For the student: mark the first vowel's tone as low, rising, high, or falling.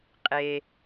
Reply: low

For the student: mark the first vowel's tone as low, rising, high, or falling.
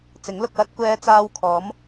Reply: rising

